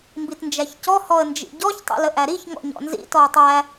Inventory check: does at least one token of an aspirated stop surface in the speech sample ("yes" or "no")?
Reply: no